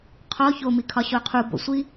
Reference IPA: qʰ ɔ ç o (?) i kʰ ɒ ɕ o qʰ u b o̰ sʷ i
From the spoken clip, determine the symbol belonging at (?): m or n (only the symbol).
m